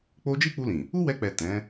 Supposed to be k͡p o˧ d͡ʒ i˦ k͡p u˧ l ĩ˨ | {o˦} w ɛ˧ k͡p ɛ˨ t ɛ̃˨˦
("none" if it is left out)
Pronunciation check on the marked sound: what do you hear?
u˦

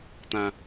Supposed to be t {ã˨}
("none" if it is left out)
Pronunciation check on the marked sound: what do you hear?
ã˦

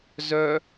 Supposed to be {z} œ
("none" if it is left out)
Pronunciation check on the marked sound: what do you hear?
z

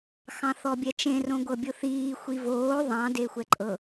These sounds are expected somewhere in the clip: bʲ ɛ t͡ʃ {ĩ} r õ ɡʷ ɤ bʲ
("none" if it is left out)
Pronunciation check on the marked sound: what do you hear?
ẽ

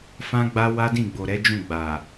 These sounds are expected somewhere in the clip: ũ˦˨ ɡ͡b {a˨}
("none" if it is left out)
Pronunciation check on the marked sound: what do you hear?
a˨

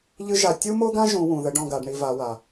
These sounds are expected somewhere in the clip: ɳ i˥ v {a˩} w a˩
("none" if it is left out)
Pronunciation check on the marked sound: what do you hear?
a˧˥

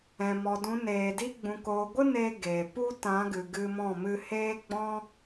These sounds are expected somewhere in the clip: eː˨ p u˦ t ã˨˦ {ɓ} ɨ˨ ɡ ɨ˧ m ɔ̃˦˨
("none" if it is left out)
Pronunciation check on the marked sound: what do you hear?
ɡ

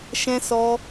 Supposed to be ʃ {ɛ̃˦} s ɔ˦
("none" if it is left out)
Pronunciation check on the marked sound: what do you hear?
ɛ̃˦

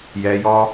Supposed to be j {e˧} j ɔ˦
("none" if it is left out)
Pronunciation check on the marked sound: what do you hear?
ɛ˧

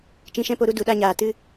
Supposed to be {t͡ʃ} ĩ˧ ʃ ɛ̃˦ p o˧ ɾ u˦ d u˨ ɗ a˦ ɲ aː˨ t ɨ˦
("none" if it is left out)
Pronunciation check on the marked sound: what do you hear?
t͡ʃ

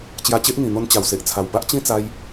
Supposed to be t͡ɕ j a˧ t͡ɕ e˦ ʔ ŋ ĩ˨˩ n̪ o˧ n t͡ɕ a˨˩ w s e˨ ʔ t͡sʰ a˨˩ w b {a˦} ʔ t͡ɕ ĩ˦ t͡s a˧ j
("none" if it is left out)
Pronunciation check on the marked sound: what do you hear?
a˦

